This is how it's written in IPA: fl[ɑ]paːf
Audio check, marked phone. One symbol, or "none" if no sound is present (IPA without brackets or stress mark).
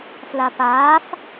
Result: a